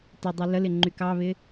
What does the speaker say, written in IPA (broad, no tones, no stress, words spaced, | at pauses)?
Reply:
tɪdˤy ləlɪ ŋ͡ǃykɑβɪ